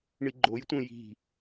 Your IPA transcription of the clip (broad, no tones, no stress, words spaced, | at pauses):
ɳiɡ͡ǃojtʷẽ ji̤